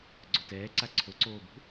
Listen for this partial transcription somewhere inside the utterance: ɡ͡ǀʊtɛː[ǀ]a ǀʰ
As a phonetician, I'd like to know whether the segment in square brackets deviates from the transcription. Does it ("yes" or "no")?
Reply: no